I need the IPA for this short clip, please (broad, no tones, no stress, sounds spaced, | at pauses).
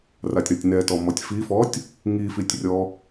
r a tʲ ɾ ɔ tʲ n ɛ t ɔ m ɔ tʲ f i f ɔ tʲ | ŋ i f i tʲ rʲ ɔ